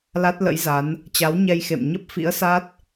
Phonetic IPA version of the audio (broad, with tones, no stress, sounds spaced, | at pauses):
l a˦˥ t̚ l ə̰˧˥ j z a˨˦ n | t͡ɕ a˨˦ w ɲ ɛ˧ j x ḛ˧˨ m ɲ ə˦˥ p̚ f ḭ˧˥ ə̯ s a˦˥ t̚